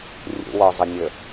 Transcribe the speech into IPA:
rʲṵwɔzˤənʲə

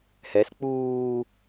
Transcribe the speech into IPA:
hɛs k͡puː

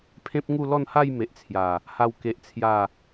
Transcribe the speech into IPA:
pʰẽ˦p̚ŋu˥˧ lɔ˥˧nha˥˧j me˨ʔt͡sʰja˨˩ | ha˥˧wke˦ʔt͡sʰja˥˧

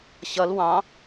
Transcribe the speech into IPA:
ɕʌl wɑ̃

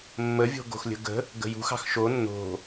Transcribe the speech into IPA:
mːəvʲo̤ ɡo̤xlʲə̤ɡə̤ | ɡə̤jṳxɑ̤x ʃo nːo̤

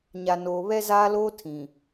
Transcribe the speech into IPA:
ɲa˨ noː˨βɛ˦ zaː˦loː˦ tʰĩ˨

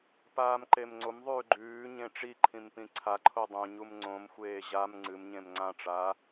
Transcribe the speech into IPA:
paːmǃemŋ͡ǀom ðˤʉːɡ͡ǃʉːɲẽ ʈ͡ʂiǃʰĩmpĩ ǀʰaǃʰo dˤũɲum ŋ͡ǀõm xʷeːʑam ŋ͡ǀɨmɲẽm ŋ͡ǀãʈ͡ʂaː

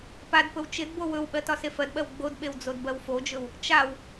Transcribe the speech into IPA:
padpɵw t͡ʃɪdbo wɵwɓɜ tɒsefɜdɓɜw ɡ͡bodɓew d͡zodbɜwfod͡ʒɵw | t͡ʃaw

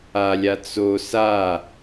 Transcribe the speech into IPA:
alʲa t͡so sa

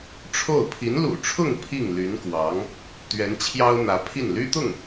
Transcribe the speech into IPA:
ʈ͡ʂʰo˥˩ʊ̯ pʰi˧˥nlṵ˨˩ʈ͡ʂʰʊ˥˧ŋ pʰi˥˩ŋly˧˥nkwɑ˧˥ŋ | t̪ɥɛ˧˥nt͡ɕʰjɑ˥ʊ̯n̪ä˧˥pʰi˥˩n ly˥t̪ʊ˥˩ŋ

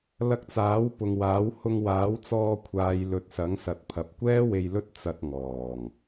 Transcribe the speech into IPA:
lɐ˧k̚t͡saː˨˥wpʊ˨ŋwaː˨˥w hʊ˧ŋwaː˨˥wt͡sɔː˧kʷʰaː˨˧j lɵ˨t̚sɐ˨˥ŋsɐ˨t̚ pʰɐ˨p̚kʷɛː˥ we˧jlɵ˥t̚ t͡sɐ˧t̚ŋɔː˨˩ŋ

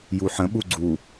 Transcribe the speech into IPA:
juħə̃ ɓuɡ͡ǀu

